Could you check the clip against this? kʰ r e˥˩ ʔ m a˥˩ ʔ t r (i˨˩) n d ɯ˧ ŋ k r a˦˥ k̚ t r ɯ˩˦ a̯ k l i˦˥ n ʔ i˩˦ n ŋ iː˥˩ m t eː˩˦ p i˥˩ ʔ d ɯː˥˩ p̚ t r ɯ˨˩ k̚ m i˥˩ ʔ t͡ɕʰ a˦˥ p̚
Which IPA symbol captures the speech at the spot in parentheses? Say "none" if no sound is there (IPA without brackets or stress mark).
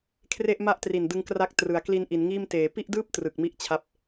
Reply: i˨˩